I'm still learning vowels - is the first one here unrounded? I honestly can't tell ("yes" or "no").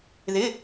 yes